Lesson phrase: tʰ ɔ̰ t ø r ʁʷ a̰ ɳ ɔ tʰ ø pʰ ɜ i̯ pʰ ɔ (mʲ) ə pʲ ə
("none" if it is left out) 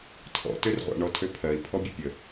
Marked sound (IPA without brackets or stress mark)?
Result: bʲ